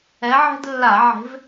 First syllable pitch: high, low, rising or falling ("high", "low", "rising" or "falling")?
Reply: rising